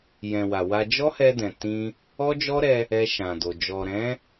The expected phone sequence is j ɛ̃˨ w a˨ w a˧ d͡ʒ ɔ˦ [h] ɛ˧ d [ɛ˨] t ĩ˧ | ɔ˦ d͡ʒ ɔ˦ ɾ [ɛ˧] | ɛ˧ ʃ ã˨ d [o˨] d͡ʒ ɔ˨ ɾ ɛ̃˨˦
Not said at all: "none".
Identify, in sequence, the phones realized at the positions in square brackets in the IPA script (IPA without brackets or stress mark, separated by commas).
h, ɛ̃˨, ɛ˧, o˨